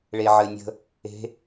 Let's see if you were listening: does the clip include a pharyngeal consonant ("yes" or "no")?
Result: yes